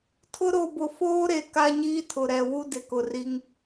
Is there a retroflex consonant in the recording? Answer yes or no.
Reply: no